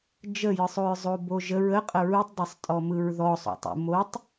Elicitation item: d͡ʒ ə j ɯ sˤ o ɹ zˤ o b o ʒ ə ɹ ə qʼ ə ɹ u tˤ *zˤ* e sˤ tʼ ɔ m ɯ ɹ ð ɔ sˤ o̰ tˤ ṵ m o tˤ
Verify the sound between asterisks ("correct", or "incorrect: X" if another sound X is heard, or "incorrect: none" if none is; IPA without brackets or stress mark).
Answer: incorrect: dˤ